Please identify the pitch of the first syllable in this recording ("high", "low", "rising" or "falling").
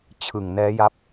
low